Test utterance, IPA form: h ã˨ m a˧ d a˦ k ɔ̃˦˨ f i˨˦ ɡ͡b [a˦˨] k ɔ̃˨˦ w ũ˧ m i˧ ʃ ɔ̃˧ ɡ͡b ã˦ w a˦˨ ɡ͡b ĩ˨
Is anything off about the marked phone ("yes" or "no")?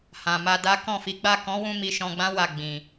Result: no